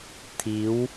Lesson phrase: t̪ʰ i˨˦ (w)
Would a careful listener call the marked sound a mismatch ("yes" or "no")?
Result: no